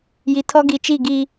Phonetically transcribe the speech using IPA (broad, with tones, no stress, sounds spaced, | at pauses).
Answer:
j i˨ tʰ ɔ˦ ɡ i˨ t͡ʃ i˦˨ ɡ i˦